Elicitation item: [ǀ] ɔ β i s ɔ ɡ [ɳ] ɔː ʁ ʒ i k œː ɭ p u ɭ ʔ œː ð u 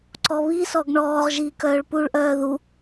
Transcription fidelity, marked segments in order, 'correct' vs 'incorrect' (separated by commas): correct, correct